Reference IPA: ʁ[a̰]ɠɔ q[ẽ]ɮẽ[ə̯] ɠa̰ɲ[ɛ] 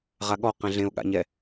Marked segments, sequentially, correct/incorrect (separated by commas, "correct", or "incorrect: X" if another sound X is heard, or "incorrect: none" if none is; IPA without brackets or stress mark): incorrect: a, incorrect: ɛ̃, incorrect: ʊ̯, correct